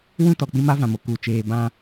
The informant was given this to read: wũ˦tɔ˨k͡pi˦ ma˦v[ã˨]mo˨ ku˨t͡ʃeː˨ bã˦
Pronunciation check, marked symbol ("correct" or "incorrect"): correct